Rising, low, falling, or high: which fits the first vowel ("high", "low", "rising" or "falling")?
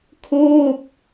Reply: falling